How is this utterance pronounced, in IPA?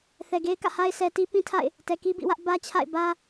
θ ɛ˨ ɡ e˦ ɪ̯ k ä̰˦˨ h a˦ ɪ̯ sʰ ɛ˨ t i˦ p ĩ˦ tʰ a̰˦˨ ɪ̯ | t ɛ˨ k i˦ b ḭ˦˨ w ä˦ ʔ b ä˦ t͡ɕʰ a̰˦˨ ɪ̯ b ä˦

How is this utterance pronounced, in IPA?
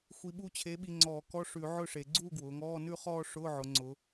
xʷ i˧ ɓ u˥˧ t͡ɕʰ e˧˥ ɓ i˧ ŋ͡ǀ ɔː˧˩˧ k ɔ˧˥˧ ʂ ʉ˧˩˧ ʕ ʊ˥˧ ʂ e˩˧ ɡ͡ǀ u˥˧ ɡ w ʊː˩˧ ŋ ɔː˧˥˧ n ʉ˥˧ χ ɔː˥˧ ʂ ʊː˧˥˧ ʕ ʊ˩˧ ŋ͡ǀ ʊ˩˧

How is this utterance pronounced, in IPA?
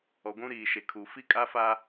ɔ˨ ɡʷ ũ˦ ɾ iː˨ ʃ e˨ kʰ u˨ f i˦ kʼ a˦ f a˦

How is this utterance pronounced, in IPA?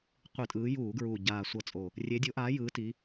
qʷ ɯ˧˩˧ tʼ ɯː˨˦ j uː˧˩˧ ɡ ɹ uː˨˩ ɟ aː˨˩ sʷ ʌ˧˩˧ t͡sʼ o˨˩ | rʲ e˨˦ dʲ o˨˦ ʔ aː˨˦ j ɯː˨˦ t i˨˦

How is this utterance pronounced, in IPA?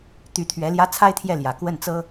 t̪ y˧˥ t̪ʰ ɥ ɛ˧˥ l j ä˥ t͡sʰ a˥ ɪ̯ t̪ʰ j ɛ˥˩ l j ä˨˩ k w ə˥˩ n t͡s ɤ˥

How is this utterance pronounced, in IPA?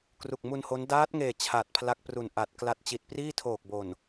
k r u˨˩ k̚ m u˧ n h o˦˥ n d aː˦˥ t̚ ŋ eː˨˩ t͡ɕʰ a˨˩ t̚ pʰ l a˦˥ k̚ p r u˨˩ n ʔ a˨˩ t̚ k l a˦˥ t̚ t͡ɕ i˨˩ t̚ p r iː˥˩ tʰ oː˨˩ k̚ b o˨˩ n

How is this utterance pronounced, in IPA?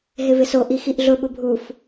ɦ ɪ v ɪ s o ʔ i x i ʔ ɮ ʊ ɓ ʊ bʱ u f

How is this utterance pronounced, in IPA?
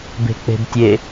b e̤ k͡p e̤ b tʲ e

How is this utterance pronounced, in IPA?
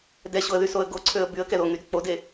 d ɛ ɕ o ə̯ ð y s o ə̯ ɡ o ǀʰ ø ə̯ b y ə̯ k ɛ ð o ŋ y d k͡p o d e

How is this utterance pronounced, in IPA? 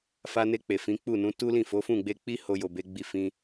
f a˧ n e˧ k͡p e˨ f ĩ˨˦ k͡p u˦˨ n ũ˨˦ t u˦ l ĩ˦˨ f o˨˦ f ũ˦˨ ɡ͡b e˧ k͡p i˦ h o˧ j o˨ b e˨˦ ɡ͡b i˦˨ f ĩ˧

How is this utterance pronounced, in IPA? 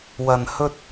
w ɐ˧ n h ɵ˥ t̚

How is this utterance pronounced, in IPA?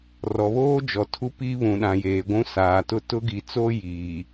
r ɔ˨ β oː˦ d͡ʒ ɔ˨ tʰ u˦ p i˦ β ũ˨ ɗ ã˨ j eː˨ ɡʷ ũ˦ s aː˨ t ʊ˦ t ʊ˦ ɡ i˨ t͡s oː˦ j iː˨

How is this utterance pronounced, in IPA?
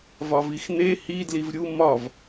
v ɒ v i x n̪ e h i d l i v ɾʲ u m ɒ v

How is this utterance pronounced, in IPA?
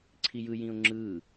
ǀʰ i j ɯ j ĩ ʊ̯ ŋ͡ǁ ɯ

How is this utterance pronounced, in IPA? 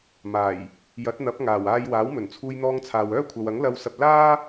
m aː˨˩ j | j ɐ˨˥ t̚ n̪ ɐ˨˥ p̚ ŋ aː˨˩ w aː˧ j w aː˨˥ w m ɵ˨˩ n t͡sʰ uː˧ j n̪ ɔː˧ ŋ t͡sʰ aː˨ w œː˥ kʷʰ ɐ˨ w ɐ˨˥ ŋ l ɐ˧ w s ɐ˧ p̚ l aː˥

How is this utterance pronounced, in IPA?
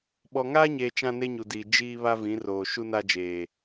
ɓ ɔ˨ ŋ aː˦ ɲ eː˨ t͡ʃ ã˦ n e˦ ɲ u˨ d i˨ d͡ʒ iː˦ β a˦ v ĩ˨˦ r oː˨ ʃ u˦ n a˦ d͡ʒ eː˨

